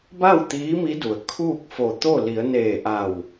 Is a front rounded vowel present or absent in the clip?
absent